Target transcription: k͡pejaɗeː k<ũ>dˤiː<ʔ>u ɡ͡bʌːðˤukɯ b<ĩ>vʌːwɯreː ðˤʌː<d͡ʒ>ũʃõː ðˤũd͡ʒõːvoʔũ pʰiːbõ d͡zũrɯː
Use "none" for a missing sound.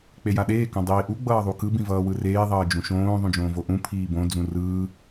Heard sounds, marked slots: õ, ʔ, ĩ, d͡ʒ

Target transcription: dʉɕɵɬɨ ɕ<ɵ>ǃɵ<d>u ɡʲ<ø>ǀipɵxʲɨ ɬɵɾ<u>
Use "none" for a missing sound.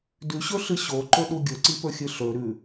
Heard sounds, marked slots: o, ɗ, ɵ, ʉ

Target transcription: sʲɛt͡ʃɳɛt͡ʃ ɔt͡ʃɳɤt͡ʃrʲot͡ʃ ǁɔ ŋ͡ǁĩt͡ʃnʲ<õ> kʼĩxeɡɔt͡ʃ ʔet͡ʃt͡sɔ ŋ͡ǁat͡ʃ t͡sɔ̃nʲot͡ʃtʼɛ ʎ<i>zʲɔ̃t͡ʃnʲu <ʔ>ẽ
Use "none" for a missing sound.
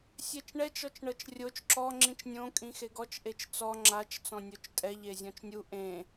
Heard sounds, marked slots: õ, e, ʔ

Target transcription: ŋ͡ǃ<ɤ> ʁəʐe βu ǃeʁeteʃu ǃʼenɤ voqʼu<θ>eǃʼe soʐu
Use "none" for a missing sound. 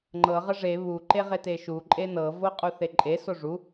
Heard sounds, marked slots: ɤ, θ

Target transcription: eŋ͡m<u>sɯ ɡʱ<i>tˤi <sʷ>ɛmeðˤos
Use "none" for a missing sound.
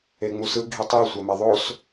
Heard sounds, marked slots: u, i, sʷ

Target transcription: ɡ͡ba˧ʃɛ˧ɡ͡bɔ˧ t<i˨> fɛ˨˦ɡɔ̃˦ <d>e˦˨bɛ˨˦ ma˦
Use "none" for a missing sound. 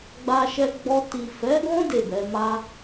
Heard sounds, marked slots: i˨, d

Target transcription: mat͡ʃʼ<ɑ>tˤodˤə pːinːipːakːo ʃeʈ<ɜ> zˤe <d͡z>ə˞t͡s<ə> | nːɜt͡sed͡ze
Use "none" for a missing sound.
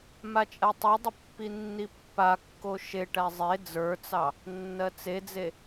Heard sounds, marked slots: a, æ, d͡z, ɑ

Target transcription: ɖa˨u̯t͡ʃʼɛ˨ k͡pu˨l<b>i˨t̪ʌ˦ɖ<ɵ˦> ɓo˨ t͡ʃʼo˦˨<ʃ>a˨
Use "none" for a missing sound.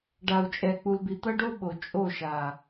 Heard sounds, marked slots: b, o˦, ʃ

